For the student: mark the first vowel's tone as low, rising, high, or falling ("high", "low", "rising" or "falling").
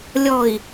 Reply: low